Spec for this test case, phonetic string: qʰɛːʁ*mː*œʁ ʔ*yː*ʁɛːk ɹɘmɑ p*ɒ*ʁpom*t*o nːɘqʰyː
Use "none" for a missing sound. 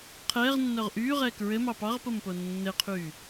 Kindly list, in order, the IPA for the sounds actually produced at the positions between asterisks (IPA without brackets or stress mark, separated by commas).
nː, yː, ɑ, p